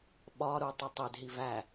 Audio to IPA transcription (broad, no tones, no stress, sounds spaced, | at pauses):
ɓ ɒ ɾ u tˤ e tˤ e d ɦ i v æ